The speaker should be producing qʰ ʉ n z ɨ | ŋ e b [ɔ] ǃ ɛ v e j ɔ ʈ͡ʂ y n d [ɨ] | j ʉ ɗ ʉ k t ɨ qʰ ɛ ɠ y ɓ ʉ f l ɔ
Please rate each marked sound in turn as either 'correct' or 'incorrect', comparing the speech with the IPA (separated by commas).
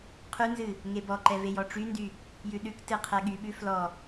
correct, incorrect